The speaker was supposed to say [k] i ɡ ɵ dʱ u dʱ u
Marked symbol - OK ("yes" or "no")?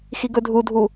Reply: no